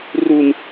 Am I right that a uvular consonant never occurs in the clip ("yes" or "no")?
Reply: yes